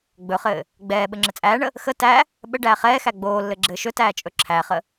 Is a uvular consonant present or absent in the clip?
present